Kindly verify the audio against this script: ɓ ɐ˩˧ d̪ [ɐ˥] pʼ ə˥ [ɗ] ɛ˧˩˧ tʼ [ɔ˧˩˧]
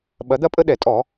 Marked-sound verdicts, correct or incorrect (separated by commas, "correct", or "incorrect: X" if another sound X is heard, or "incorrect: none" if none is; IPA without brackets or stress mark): correct, correct, correct